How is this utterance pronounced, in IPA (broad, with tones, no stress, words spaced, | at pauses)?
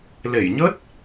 le˧˩jɲə˦˥t̚